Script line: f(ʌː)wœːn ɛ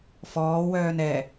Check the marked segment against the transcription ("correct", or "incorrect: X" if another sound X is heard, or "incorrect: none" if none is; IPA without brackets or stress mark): incorrect: ɔː